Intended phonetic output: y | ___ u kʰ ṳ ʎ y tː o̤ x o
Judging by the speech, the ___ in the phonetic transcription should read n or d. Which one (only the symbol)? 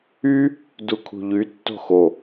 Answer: d